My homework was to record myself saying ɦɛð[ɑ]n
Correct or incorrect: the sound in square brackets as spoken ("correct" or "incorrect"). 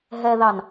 correct